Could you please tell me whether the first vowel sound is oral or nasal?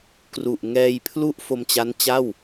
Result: oral